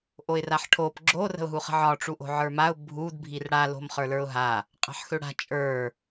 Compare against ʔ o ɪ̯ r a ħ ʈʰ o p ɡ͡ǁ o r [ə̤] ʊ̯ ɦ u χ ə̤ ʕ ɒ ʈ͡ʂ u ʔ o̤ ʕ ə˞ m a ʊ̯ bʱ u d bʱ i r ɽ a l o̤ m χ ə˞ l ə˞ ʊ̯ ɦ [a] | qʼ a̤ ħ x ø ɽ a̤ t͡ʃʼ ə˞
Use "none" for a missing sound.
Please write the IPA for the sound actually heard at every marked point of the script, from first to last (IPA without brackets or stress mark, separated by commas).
ə̤, a